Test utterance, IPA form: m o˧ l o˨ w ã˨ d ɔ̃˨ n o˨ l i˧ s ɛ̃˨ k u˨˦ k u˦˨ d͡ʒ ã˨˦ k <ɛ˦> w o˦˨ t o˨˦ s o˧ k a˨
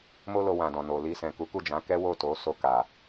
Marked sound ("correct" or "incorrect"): correct